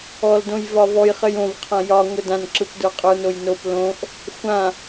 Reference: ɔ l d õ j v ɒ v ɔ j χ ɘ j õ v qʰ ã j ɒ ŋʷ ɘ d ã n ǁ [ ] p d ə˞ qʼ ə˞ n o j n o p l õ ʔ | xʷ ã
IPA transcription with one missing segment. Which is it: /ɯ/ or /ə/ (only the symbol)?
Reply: ɯ